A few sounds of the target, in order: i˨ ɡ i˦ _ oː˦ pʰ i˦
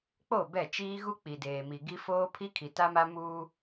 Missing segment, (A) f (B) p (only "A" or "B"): A